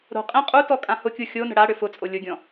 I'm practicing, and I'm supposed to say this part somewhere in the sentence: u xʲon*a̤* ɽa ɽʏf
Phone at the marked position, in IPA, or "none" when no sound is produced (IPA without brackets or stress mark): ə̤